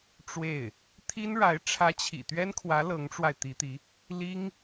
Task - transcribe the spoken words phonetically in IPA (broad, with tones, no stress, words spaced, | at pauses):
ʈ͡ʂwe˥˩ɪ̯ | t̪ʰi˥nɻa˧˥ɪ̯ ʈ͡ʂʰä˧˥t͡ɕʰḭ˨˩ t̪ɥɛ˥nkʰwä˧˥ lɤ˧˥ŋʈ͡ʂwa˧ɪ̯t̪i˧˥t̪i˧˥ | li˥ŋ